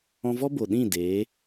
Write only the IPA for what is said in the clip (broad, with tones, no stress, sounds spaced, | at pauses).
ɔ̃˧ v ɔ˦ b o˨ ɗ ĩ˦˨ d eː˨˦